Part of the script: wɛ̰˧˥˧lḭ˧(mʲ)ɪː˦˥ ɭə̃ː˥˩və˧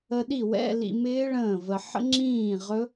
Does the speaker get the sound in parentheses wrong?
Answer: yes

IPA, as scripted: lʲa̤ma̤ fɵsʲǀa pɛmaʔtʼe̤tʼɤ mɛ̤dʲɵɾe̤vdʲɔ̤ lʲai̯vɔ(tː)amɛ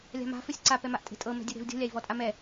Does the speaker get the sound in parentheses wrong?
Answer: yes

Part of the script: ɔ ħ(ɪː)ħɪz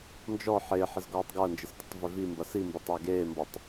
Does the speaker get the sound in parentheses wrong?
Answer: no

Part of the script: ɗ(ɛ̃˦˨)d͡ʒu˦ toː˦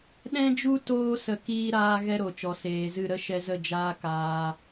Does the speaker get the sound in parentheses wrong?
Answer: yes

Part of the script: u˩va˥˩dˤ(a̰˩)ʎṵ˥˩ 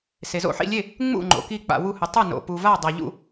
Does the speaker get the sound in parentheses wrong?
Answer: yes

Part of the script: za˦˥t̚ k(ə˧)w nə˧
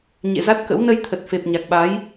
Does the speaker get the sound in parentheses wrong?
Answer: yes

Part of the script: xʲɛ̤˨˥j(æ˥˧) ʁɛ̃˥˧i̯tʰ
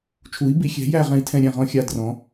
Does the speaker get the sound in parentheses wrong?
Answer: no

